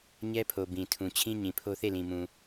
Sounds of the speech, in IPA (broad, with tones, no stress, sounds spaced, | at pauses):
ɲ ɛ˦ pʰ o˨ b ĩ˨ tʰ ũ˨ t͡ɕʰ ĩ˦ ɲ ĩ˨ pʰ o˦ θ e˦˨ l ĩ˨ m ũ˨